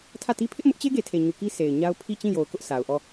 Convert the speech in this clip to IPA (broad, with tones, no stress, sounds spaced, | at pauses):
tʰ ä˦˨ t i˦ pʰ ɪ˦ ʔ m ʊ˦ ʔ t͡ɕ e˦ ɡ e˨ tʰ e˨ ɲ u˨ k i˦ sʰ e˨ ɪ̯ ɲ a˦ ʊ̯ pʰ i˦˨ t͡ɕ ĩ˦˨ j o˨ ʊ̯ k ʊ˦ ʔ sʰ a˨ ʊ̯ ʔ ɔ˦˨